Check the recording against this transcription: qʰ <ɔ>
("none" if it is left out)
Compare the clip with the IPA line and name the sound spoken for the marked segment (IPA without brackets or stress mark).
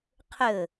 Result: ɵ